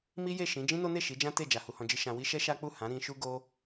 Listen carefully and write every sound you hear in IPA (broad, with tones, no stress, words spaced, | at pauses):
mi˦je˦˨ʃĩ˨˦ d͡ʒĩ˦no˦ne˦˨ ʃi˨˦d͡ʒã˦te˦˨ d͡ʒa˨hu˧hɔ̃˧d͡ʒi˦ ʃã˧wi˦ ʃɛ˦ʃa˦k͡pu˦˨ hã˨˦ɾĩ˧ʃu˦ ɡo˦